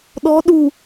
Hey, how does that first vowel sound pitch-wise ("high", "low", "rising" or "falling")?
rising